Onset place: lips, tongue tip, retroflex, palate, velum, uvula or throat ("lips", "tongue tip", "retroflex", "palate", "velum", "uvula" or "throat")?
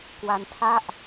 velum